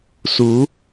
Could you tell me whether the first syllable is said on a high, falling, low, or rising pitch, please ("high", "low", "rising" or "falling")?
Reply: rising